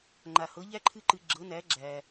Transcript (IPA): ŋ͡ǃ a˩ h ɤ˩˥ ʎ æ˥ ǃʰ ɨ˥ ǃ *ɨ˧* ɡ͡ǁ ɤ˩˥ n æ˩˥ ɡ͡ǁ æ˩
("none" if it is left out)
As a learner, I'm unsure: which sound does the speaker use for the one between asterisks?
ɨ˧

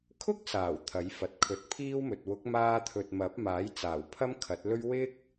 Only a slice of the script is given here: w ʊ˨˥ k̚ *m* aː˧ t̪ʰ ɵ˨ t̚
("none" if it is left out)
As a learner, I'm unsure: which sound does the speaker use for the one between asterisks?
m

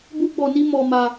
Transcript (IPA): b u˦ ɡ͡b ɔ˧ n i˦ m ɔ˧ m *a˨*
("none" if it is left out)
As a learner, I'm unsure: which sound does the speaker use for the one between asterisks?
a˧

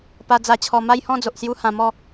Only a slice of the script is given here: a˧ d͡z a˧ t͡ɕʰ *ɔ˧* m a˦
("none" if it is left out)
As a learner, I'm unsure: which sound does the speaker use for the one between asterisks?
ɔ˧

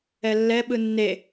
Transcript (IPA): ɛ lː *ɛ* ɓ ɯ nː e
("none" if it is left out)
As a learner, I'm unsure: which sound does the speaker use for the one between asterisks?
ɛ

